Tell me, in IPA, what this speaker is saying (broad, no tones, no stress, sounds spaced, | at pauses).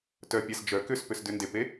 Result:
t œ pʲ a s d͡ʒ œ k ʏ s p ʏ s d ʏ n d e p e